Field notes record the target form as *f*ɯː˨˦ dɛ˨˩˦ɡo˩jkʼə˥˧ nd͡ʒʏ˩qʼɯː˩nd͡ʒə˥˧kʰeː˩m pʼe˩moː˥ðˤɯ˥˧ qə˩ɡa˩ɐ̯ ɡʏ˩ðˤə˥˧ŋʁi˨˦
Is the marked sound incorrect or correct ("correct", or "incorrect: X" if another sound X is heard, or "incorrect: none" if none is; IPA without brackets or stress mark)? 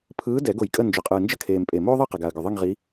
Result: incorrect: pʰ